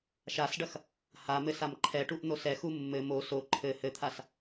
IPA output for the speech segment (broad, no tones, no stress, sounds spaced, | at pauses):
ʃ a s ɖ ɐ x | h a m ɘ s a m ǃʰ ɛ ʈ u ʔ n̪ o s ɛ x u mː ɘ m o s o ǃʰ ɘ h ɘ t̪ʰ a s